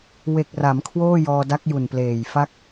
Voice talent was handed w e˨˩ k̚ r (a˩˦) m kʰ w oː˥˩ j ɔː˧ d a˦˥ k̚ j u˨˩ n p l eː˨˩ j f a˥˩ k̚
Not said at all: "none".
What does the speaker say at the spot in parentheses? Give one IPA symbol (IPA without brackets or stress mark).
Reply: a˩˦